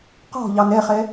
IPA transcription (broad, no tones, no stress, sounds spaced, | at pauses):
q ɔ̤ ʎ ɑ n ɛ χ ɛ